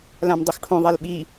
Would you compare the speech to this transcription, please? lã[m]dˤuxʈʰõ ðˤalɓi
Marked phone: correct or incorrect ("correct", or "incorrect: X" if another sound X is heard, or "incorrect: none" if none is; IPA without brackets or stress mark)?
correct